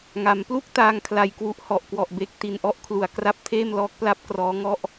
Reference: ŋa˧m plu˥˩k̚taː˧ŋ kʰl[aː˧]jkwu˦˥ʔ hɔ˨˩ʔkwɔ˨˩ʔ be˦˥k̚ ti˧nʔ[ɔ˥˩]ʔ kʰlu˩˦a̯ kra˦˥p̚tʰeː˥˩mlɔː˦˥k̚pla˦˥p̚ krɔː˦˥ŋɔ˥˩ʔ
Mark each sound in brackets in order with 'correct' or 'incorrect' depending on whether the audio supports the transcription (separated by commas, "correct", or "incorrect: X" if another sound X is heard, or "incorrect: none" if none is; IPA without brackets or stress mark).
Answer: incorrect: a˧, incorrect: ɔ˦˥